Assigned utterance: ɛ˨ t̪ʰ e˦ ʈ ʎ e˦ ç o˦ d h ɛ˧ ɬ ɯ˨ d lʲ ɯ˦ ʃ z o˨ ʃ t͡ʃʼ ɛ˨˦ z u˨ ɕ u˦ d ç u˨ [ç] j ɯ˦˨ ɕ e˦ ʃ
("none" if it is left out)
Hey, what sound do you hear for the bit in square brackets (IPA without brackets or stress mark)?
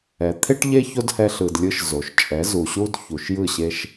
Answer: ʃ